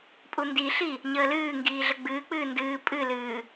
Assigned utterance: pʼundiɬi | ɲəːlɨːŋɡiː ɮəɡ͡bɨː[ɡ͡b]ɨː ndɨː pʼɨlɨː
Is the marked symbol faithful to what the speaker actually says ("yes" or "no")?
no